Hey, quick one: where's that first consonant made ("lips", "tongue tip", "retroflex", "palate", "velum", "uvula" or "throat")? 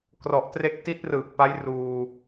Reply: velum